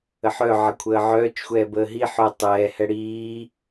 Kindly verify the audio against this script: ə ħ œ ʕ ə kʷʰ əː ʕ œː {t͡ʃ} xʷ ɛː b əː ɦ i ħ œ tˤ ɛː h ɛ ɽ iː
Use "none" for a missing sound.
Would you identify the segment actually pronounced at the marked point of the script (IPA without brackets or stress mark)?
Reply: t͡ʃ